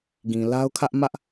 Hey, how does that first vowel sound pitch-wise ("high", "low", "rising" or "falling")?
low